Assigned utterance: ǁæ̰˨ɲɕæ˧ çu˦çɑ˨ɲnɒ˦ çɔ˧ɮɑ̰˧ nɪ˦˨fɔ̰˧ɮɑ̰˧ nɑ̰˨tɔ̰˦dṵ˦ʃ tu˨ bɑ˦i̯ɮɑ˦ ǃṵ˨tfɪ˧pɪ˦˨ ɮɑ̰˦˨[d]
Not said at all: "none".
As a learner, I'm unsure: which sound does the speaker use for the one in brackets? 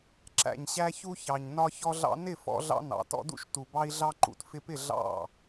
none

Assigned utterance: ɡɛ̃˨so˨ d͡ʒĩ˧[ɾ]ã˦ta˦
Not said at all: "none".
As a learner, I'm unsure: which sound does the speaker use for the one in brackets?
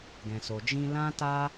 l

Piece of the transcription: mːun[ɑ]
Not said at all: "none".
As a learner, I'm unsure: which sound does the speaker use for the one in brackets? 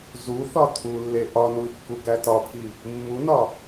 ɒ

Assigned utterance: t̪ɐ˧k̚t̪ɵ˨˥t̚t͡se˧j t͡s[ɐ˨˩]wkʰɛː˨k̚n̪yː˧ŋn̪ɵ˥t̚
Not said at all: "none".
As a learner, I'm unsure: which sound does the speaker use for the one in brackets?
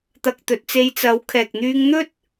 ɐ˨˥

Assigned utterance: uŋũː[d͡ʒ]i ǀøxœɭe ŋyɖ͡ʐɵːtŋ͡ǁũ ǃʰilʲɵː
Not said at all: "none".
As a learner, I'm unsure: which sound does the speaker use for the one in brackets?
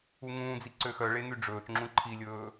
d͡z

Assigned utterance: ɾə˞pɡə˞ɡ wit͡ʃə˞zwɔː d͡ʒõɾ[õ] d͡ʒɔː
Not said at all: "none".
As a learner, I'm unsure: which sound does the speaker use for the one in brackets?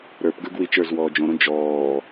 õ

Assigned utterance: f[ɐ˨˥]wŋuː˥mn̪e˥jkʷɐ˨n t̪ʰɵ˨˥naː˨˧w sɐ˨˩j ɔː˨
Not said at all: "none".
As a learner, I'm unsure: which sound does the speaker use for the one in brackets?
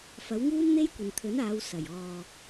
ɐ˨˥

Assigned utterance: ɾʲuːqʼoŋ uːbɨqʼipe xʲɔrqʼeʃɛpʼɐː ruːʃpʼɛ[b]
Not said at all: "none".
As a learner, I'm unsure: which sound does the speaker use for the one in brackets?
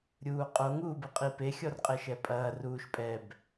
b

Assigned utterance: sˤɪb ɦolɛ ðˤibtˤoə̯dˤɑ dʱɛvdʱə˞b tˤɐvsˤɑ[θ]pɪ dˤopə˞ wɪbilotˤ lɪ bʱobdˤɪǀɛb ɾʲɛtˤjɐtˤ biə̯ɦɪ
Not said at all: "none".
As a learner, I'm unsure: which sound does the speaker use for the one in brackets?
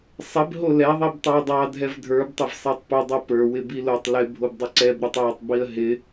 tˤ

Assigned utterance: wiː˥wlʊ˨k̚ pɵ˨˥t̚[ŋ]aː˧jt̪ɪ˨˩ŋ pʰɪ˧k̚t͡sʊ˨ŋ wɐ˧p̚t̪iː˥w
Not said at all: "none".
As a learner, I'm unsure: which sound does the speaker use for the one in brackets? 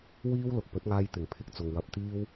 ŋ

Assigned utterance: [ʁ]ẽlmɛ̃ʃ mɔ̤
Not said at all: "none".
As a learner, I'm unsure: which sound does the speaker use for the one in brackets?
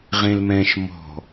ʁ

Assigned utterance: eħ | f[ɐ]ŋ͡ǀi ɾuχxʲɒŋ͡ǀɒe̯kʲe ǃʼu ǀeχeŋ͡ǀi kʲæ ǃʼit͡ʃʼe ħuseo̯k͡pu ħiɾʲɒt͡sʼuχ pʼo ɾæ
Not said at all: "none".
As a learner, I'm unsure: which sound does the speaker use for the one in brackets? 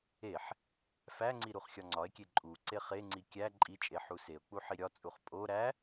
æ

